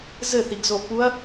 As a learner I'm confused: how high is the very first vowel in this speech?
mid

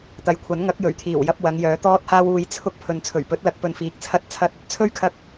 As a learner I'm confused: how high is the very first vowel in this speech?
low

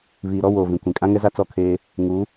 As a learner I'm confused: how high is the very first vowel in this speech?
high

